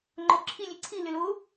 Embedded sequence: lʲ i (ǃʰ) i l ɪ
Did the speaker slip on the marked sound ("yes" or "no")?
yes